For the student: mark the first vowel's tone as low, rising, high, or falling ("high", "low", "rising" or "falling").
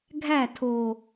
falling